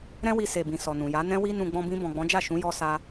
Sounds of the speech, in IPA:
ɾ ɛ̃˦ w i˧ s e˨ b ĩ˨ s ɔ˨ n ũ˨ j a˨˦ n ɛ̃˦ w i˦ n ũ˧ ɡ͡b ɔ̃˧ b ĩ˧ b ɔ̃˨ ɡ͡b ɔ̃˨˦ d͡ʒ a˦˨ ʃ ũ˨˦ j ɔ˧ s a˦

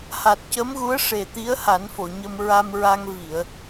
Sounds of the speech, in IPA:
h a˨˩ t̚ c ə˧˥ m ɣ u˧˥ ə̯ ʂ e˨˩ t̪ i˧˥ ə̯ h a˨˩˦ n f o˨˩˨ ɲ ə˧ m ɹ a˧ m ɹ a˧ ŋ v i˨˩˨ ə̯

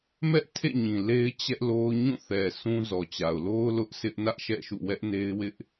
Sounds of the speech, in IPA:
m ɛ˦ ʔ tʰ ḛ˦˨ ɲ ĩ˨ l e˦ ɪ̯ t͡ɕ ɛ˦ ʔ l o˦ ʊ̯ ɲ ũ˦˨ θ ɛ˨ sʰ ũ˦ z ɔ˨ t͡ɕ a˨ ʊ̯ l o˦ ʊ̯ l ʊ˦ ʔ sʰ ɪ˦ ʔ n ä˦ ʔ ʃ ɛ̰˦˨ ʃ ṵ˦˨ w ɛ˦ ʔ n e˦ ɪ̯ w ɪ˦ ʔ

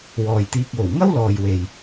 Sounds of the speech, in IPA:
w ɔː˨ j t̪ iː˧ k̚ w o˨˩ w ŋ ɐ˥ w l ɔː˨ j w e˨ j

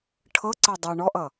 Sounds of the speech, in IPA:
ʈʰ ɤ ǀ ɛ dˤ ʌ ɳ ɔ ʔ ʌ

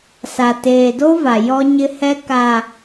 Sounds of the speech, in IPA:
s a˨ t eː˨ d o˦ v a˨ j ɔ˦ ɲ ɪ˦ h ɛ˦ k a˨

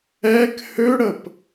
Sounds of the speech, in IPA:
ɛ k h ø ɽ ə p

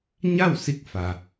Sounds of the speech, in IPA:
ɲ a˥˨ w s i˧ k̚ f a˩

